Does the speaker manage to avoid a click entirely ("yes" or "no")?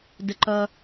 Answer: no